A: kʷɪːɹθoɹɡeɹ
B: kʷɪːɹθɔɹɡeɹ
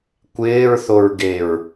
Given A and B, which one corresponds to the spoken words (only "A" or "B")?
A